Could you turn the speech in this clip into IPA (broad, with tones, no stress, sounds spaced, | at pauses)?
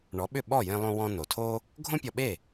ɳ ɔ˩˥ ɓ ʏ˥˩ ɓ ɔ˥˩ j ẽ˧ lˠ õ˧ w ɔ̃˧ n o˩ tʰ o˥ | ɡʱ õ˥ pʲ ɔ˧ ɓ e˥˩